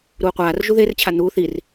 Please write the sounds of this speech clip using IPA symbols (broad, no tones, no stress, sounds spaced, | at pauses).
ɾ uː qʷ aː r ʒ u ð e r t͡ɕʰ a n̪ uː θ i r